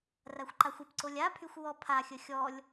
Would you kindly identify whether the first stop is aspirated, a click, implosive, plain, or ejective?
click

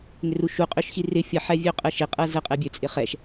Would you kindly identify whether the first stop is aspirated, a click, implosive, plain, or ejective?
ejective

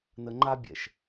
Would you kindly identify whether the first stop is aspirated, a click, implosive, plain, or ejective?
click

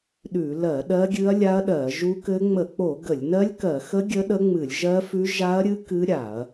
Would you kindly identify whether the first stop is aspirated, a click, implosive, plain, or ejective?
implosive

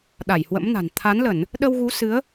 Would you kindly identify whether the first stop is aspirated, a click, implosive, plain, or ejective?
implosive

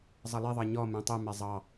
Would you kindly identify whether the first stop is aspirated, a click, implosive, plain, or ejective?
plain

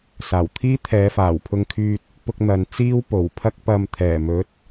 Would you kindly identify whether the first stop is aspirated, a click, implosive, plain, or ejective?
aspirated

